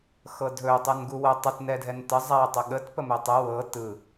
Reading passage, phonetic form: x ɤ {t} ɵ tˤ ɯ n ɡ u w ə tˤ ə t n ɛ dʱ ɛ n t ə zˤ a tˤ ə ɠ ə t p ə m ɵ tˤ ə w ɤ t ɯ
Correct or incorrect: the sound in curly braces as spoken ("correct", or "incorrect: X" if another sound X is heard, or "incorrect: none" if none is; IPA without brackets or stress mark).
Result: incorrect: dʱ